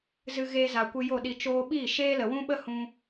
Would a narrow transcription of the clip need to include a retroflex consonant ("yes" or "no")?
no